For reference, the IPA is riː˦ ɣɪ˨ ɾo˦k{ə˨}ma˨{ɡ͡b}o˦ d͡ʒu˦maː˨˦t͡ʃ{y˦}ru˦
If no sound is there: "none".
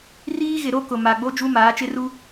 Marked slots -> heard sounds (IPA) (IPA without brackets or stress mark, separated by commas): ʊ˨, ɡ͡b, ɪ˦